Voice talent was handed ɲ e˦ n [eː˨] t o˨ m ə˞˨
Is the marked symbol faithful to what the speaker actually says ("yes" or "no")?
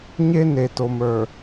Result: no